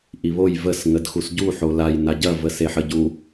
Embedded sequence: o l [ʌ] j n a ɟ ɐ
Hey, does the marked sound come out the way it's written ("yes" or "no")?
no